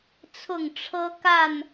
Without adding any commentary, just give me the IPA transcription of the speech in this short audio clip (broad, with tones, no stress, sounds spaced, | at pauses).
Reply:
t͡sʰ ʊ˥˨ ŋ ʈ͡ʂʰ ɤ˦ k a˥˨ n